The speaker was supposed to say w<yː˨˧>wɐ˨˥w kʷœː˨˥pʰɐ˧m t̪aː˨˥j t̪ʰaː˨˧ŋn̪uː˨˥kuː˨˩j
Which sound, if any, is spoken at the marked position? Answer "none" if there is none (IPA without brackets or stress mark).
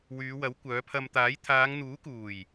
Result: yː˨˧